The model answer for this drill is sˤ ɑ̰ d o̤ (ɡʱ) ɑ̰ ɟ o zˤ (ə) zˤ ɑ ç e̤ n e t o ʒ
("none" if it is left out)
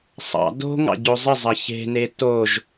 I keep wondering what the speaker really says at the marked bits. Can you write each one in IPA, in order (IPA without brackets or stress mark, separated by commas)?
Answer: ŋ, ə